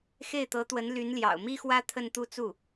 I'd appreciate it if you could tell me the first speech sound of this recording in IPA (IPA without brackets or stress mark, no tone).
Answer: x